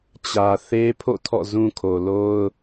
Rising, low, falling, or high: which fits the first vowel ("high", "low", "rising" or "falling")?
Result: low